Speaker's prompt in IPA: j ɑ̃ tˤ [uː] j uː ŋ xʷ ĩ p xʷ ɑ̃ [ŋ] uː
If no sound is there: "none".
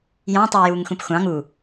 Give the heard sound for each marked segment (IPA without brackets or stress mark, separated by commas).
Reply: yː, ŋ